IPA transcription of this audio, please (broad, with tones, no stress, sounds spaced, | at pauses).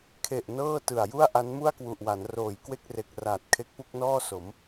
kʰ e˨˩ ʔ n ɤː˥˩ t ɯ˨˩ a̯ j u˥˩ a̯ ʔ a˦˥ n m u˥˩ a̯ k w u˨˩ ʔ w a˩˦ n r oː˨˩ j k w e˥˩ k̚ r e˨˩ k̚ r aː˨˩ t̚ kʰ e˦˥ k̚ p u˥˩ k̚ n ɔː˥˩ s o˩˦ m